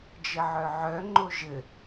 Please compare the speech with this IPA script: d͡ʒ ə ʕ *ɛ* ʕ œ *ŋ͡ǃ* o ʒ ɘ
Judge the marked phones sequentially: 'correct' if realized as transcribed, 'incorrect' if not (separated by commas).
incorrect, correct